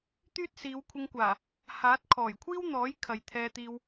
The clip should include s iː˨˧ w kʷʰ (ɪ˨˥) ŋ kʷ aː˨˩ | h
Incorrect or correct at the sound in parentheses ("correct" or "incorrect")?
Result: incorrect